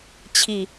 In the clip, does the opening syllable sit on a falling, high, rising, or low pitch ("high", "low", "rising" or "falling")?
low